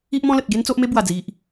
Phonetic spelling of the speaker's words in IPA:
i˦ ʔ m ɔ̃˦ l ə˨ t̚ ɡ e˦ n t͡s o˦ ʔ m e˦ b w a˨˩ d͡z i˨ ʔ

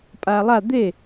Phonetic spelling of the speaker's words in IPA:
pʼ aː lˠ a d̪ e

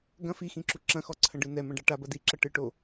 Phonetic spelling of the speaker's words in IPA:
ɡ ɐ̃ f i x ĩ ǁ u ǁ ɐ̃ x ɔ ǀʰ ɐ̃ ɖ ɨ n ɛ m ɐ̃ ɖ a ʈ a b ɐ d i ǁ ɐ ʈ ɨ ʈ o

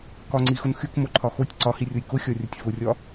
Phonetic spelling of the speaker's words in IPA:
k ɒ ŋ͡ǀ i x ʊ n x y k m o ǃʰ ɒ x o tʲ ǀ ɒ h i rʲ o j k ʊ xʲ ɒ rʲ ʊ tʲ f ʊ rʲ ɒ

